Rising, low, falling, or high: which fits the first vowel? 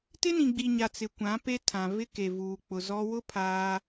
high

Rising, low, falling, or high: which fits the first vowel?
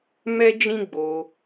high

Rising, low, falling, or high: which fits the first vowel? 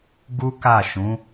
high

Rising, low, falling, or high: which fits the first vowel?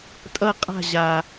falling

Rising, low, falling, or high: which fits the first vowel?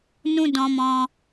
high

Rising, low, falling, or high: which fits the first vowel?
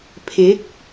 rising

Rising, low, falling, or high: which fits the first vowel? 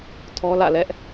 high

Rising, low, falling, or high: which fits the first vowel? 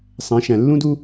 rising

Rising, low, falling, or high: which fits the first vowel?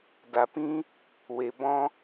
low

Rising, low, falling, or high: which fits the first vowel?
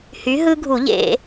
rising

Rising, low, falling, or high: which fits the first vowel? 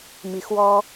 low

